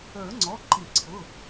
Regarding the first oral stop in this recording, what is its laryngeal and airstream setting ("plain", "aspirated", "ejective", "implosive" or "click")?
click